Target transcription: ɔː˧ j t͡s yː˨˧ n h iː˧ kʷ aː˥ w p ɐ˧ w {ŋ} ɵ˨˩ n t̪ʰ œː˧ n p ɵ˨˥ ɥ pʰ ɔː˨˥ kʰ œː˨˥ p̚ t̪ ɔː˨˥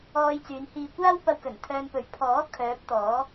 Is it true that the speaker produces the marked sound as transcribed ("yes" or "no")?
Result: no